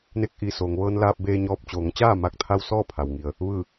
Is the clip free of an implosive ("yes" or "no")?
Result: yes